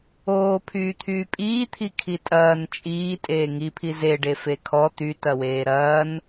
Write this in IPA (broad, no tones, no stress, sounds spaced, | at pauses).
oː pʰ yː t̪ʰ yː pʼ iː t̪ʰ i kʰ i tʼ ɐː n t͡ʃʼ iː tʼ eː ŋ i pʰ i z e ɖ e f e kʰ ɔ t̪ y t ɐ w eː ɾ ɐː n